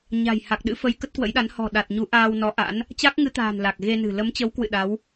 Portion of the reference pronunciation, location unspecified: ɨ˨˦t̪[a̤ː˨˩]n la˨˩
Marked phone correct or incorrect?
correct